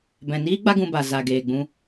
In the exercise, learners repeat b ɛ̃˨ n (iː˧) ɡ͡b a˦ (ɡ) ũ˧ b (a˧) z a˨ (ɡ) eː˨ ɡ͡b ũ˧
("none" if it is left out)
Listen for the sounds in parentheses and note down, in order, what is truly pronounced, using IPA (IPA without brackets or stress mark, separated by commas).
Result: iː˦, ɡ, a˨, ɡ